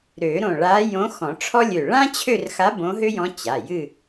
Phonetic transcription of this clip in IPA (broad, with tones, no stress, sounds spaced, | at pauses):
ɾ ø˨˩˦ ɾ õ˧˩ ɭ a˧˥ j õ˧˥ x ɔ̃˨˩˦ ʈ͡ʂʰ ɔ˥ lʲ ø˧˩ ɭ ã˥ t͡ɕʰ ø˥˧ r x a˧˥ b õ˧˥ ɦ ø˥ j ɔ̃˧˥ t͡ɕ a˩˧˩ j ɨ˥˧